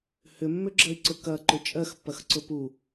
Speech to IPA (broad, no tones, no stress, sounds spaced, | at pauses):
h ʏ mː ʏ ɡ͡ǁ ɐ i̯ ǀ ʊ k ɐ ǃ ʏ t͡ʃʼ ɜ x pː ɐ x ǀ ʊ p u